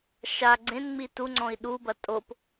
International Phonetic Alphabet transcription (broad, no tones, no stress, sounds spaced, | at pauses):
ʃ a ɡ͡ǀ ẽ n ŋ͡m i t u ŋ͡ǀ ɔ̃ i̯ ɗ u b ɐ tʼ o p